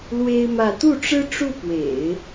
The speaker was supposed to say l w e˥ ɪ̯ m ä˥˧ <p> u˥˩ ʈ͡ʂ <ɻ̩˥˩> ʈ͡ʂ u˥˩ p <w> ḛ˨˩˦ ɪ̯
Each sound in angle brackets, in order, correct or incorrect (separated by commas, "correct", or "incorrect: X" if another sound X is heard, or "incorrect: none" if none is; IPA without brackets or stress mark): incorrect: t̪, incorrect: ɻ̩˥, correct